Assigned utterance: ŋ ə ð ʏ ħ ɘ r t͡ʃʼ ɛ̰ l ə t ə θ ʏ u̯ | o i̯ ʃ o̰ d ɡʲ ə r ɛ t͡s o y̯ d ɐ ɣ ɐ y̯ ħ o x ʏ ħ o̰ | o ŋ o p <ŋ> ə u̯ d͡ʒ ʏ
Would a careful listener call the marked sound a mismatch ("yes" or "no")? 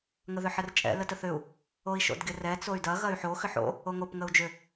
no